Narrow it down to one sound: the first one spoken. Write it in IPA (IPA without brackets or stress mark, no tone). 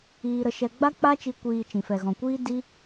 iː